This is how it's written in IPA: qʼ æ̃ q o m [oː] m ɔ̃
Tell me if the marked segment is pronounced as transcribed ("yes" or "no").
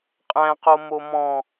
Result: no